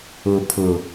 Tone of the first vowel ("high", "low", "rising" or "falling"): low